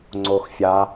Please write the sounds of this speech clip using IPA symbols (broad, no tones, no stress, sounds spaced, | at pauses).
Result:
ŋ͡ǀ o x fʲ a